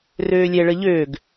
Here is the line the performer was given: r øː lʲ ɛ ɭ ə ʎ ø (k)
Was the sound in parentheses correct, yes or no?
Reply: no